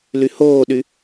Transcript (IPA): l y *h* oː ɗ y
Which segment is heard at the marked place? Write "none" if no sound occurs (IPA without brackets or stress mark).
h